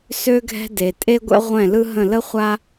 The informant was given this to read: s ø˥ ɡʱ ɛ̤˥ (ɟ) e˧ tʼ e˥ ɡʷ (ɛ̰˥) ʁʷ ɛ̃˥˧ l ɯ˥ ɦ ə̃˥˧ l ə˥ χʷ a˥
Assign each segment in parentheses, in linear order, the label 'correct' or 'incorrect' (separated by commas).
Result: incorrect, correct